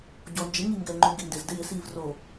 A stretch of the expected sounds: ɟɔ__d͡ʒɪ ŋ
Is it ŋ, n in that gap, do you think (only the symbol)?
n